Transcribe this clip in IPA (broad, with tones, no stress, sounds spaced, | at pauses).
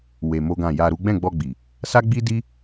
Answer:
w e˧ m o˦ ɡ ã˦˨ j a˧ ɾ u˦ ɡ͡b ɛ̃˦˨ ɡ͡b ɔ˧ ɡ͡b i˨ | s a˦ ɡ͡b i˦ d i˦